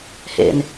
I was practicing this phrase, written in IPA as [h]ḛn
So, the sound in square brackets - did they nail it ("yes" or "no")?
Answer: yes